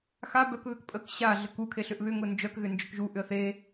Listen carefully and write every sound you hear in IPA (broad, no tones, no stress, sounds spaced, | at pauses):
x a b œ k β ʏ k pʼ ə k ɕ a ɮ ə k u kʰ e ɬ ʏ ʔ β ʏ ŋ ʊ n d͡ʒ œ k ɣ ʏ n d͡ʒ ʏ k ʒ u ʔ ʏ ə̯ θ e